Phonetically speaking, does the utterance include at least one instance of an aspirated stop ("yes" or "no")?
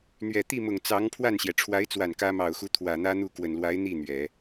yes